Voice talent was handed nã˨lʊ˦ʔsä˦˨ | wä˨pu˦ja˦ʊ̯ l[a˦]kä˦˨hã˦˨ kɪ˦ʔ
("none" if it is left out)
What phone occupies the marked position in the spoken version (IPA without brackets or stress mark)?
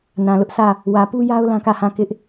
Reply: ã˦